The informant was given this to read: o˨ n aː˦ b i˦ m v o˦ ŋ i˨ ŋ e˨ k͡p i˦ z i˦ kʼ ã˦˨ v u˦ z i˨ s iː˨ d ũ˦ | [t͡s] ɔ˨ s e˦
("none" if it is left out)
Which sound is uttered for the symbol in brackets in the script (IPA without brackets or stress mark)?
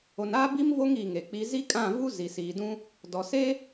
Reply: d